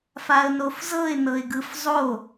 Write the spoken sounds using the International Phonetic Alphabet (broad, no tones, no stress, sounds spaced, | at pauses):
f a ə̯ n o f z ɤ ɪ̯ n ɤ ɪ̯ ɡ ɯ f zˤ o